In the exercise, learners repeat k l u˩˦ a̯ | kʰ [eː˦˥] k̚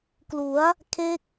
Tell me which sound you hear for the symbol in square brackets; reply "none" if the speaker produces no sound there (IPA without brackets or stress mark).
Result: e˦˥